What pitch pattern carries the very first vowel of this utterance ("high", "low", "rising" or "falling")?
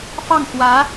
falling